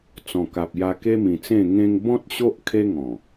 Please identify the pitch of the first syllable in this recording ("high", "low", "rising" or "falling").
low